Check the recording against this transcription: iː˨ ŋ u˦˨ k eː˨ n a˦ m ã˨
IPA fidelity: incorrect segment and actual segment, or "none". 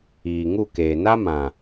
none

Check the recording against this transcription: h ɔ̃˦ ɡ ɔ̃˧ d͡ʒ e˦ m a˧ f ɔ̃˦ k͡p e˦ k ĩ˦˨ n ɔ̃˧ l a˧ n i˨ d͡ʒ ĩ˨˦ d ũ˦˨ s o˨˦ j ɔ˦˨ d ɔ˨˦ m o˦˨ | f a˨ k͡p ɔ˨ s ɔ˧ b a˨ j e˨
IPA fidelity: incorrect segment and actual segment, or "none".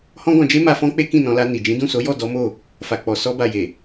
none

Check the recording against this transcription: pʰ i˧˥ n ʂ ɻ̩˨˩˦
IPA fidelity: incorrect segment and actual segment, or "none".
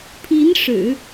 none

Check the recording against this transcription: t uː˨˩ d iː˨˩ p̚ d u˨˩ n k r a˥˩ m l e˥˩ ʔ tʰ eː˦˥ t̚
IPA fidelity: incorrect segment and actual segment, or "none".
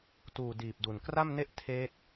l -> n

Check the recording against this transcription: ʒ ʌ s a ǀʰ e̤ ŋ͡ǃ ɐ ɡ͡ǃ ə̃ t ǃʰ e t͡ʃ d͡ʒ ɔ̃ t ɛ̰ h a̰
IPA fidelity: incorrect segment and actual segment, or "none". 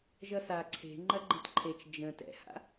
ɔ̃ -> ə̃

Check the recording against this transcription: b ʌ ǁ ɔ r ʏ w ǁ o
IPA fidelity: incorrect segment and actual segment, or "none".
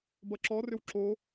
none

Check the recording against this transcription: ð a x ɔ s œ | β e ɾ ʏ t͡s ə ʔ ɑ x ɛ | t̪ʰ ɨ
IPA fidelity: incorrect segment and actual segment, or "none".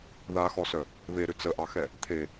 ɨ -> e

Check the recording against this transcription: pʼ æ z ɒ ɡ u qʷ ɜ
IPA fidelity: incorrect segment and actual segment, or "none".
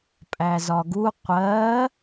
none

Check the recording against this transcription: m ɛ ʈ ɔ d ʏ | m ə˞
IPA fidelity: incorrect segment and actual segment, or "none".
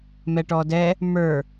ʏ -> ɛ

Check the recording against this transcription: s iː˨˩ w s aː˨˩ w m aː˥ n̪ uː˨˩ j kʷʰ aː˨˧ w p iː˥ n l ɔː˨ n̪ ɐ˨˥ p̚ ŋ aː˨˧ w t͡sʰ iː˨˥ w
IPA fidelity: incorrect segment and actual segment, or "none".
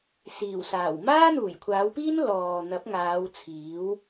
none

